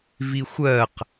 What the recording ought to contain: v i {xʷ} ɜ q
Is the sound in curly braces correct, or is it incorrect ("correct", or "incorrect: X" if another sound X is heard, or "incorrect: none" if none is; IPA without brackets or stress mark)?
correct